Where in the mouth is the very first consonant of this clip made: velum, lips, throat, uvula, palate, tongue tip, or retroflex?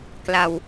velum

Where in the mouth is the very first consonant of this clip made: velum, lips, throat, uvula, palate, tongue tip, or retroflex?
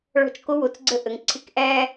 retroflex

